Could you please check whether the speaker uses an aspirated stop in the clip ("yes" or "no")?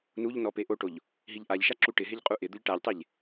no